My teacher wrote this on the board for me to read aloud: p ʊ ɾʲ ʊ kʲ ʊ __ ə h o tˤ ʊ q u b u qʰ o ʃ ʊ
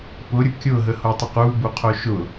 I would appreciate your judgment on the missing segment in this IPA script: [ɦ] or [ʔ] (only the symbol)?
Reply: ɦ